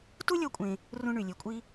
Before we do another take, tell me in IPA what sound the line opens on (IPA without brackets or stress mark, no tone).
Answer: t